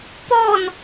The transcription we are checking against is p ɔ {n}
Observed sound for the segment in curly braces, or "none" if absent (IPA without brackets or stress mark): n